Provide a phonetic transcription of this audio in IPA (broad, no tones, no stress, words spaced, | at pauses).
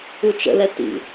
ut͡ʃə̰lɛ tḭ